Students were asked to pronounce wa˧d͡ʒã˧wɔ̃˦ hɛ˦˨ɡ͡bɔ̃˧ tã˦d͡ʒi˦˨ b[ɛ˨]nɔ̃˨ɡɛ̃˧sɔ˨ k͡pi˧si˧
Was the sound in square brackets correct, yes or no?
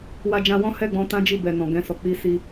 yes